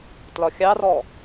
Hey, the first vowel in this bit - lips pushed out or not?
yes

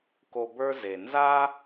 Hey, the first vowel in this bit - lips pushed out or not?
yes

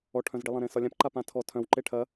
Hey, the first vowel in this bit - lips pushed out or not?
yes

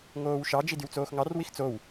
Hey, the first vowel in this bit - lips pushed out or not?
yes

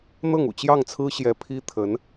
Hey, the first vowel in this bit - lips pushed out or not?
no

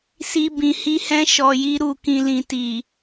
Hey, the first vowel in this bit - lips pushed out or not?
no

